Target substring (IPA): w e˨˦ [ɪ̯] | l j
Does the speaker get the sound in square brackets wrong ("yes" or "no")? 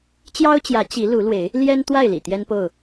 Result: no